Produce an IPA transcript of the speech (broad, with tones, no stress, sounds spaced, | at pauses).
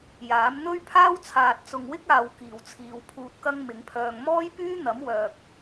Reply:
j aː˨˥ m n̪ ɵ˥ ɥ pʰ aː˥ w t͡sʰ aː˨ t̚ t͡s ʊ˨ ŋ w ɪ˥ k̚ aː˨ w k iː˨˩ w t͡sʰ iː˨ w pʰ uː˧ t̚ k ɐ˥ ŋ m ɪ˨˥ ŋ pʰ œː˧ ŋ m ɔː˥ j p yː˥ n̪ ɐ˨˥ m w œː˨ k̚